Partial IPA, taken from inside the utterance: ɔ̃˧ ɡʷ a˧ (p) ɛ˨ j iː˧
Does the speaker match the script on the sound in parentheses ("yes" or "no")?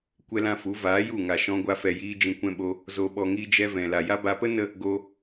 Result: no